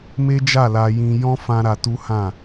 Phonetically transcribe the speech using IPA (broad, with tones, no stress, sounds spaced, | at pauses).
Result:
m e˦ d͡ʒ a˦˨ l a˧ j ĩ˧ j ɔ̃˦ f ã˦ ɾ a˧ t u˦ h ã˦˨